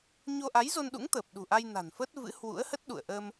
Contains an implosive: yes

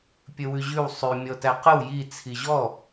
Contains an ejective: no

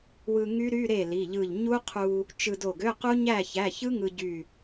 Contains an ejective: no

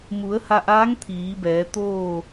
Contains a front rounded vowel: no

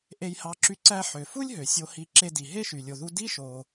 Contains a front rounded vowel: yes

